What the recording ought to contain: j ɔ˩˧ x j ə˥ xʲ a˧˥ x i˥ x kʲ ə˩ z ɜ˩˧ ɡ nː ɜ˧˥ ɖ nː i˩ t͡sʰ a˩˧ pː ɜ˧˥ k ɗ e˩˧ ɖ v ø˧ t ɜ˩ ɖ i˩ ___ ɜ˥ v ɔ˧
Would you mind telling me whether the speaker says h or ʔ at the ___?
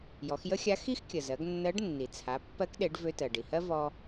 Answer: h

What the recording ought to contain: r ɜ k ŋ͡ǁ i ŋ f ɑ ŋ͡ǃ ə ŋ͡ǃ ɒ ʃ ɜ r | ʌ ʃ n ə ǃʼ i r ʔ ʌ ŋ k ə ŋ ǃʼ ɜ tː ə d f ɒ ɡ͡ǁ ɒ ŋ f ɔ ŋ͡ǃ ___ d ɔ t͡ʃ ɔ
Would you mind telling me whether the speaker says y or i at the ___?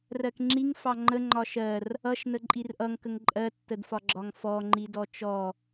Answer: i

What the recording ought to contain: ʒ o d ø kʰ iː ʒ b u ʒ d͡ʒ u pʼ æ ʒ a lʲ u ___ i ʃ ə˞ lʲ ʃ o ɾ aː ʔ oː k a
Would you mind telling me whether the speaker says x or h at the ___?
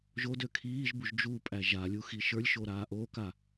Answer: x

